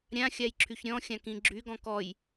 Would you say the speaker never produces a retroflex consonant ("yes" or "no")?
yes